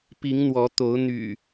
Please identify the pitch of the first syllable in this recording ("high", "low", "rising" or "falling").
rising